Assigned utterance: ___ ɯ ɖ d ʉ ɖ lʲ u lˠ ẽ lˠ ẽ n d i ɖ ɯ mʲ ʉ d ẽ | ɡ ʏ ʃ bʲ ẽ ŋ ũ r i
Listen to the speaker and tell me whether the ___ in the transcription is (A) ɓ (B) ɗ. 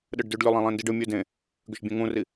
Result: B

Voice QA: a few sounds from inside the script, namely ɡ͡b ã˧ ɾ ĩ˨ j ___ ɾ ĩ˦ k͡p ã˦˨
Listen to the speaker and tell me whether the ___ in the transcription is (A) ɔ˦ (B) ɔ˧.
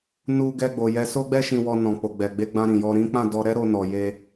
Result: B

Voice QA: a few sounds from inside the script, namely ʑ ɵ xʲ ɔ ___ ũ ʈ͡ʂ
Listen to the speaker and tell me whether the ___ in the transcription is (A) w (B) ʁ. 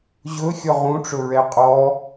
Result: B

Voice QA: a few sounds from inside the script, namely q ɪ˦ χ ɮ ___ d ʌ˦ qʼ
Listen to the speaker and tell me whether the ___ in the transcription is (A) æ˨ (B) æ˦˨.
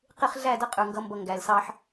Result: B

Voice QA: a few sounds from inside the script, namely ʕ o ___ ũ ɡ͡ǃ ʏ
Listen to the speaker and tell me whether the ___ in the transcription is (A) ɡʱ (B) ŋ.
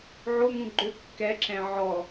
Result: B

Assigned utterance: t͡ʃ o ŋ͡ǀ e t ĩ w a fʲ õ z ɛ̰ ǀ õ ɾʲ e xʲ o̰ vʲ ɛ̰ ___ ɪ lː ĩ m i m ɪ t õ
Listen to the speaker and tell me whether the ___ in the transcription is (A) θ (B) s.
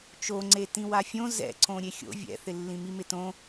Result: A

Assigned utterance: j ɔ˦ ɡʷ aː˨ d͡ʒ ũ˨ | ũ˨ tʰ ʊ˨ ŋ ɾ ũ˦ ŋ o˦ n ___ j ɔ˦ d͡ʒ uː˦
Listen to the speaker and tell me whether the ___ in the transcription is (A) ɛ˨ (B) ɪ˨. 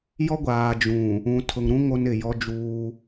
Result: B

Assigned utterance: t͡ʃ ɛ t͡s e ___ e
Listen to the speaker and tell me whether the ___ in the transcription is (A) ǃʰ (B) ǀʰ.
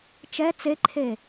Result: A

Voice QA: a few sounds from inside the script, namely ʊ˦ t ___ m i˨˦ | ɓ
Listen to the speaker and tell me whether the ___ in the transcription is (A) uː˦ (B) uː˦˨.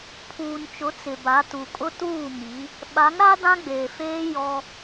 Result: B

